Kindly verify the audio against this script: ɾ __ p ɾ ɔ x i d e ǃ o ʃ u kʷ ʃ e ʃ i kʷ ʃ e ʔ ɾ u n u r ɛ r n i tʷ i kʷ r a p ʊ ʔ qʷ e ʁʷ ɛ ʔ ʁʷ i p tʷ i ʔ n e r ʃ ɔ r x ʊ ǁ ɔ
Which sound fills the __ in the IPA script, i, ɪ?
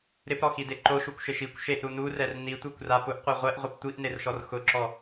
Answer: ɪ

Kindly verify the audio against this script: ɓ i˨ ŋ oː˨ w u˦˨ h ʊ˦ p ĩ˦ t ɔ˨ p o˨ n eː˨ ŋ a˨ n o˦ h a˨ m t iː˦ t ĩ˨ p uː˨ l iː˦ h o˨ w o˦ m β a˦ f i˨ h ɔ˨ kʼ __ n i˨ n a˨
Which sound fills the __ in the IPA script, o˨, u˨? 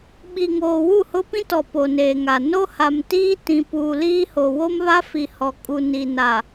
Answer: u˨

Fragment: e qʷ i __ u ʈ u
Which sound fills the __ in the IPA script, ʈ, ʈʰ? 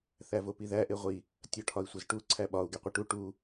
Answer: ʈ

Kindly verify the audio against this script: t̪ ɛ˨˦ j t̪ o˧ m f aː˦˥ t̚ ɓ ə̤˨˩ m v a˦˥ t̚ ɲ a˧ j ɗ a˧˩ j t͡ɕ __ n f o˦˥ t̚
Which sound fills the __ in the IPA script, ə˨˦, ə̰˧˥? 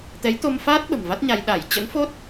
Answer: ə̰˧˥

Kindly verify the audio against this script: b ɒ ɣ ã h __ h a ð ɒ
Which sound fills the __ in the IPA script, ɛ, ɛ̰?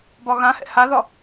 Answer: ɛ̰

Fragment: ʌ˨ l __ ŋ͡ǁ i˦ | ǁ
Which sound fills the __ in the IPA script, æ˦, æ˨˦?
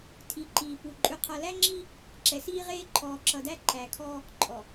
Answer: æ˦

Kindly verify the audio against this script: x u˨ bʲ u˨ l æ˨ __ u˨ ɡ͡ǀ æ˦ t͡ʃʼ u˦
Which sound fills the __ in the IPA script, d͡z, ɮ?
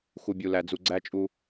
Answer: d͡z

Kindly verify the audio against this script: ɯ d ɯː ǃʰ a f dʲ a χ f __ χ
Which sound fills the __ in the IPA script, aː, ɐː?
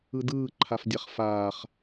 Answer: aː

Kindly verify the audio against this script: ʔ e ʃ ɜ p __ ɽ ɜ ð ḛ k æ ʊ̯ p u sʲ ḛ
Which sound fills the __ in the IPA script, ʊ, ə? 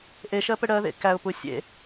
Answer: ə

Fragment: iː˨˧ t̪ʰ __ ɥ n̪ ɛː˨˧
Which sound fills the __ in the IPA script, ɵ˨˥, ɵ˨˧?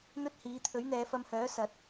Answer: ɵ˨˥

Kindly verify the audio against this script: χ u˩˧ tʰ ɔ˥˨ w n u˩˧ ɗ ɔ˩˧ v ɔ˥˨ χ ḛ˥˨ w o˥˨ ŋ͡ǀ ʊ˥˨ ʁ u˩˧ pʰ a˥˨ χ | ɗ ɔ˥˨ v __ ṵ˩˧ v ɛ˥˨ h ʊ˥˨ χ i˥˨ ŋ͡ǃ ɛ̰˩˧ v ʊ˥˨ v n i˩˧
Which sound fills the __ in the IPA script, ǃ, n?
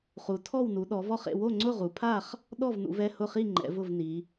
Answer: n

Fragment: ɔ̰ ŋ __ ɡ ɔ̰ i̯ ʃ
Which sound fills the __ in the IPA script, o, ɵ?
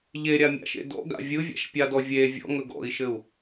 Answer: ɵ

